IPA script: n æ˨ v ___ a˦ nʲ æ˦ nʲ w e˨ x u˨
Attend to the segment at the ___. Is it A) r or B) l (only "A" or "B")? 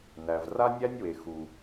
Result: A